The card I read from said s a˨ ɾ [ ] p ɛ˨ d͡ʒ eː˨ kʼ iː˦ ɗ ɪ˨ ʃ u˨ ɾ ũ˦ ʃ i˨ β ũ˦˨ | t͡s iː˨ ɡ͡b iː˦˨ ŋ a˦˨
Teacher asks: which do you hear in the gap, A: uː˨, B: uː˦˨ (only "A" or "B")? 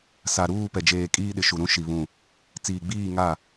B